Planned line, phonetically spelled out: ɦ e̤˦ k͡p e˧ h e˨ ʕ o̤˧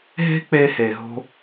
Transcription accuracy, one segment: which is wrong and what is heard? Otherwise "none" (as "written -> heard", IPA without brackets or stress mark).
ʕ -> ɦ